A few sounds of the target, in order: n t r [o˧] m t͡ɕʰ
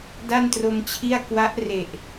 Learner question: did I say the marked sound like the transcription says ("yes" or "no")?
yes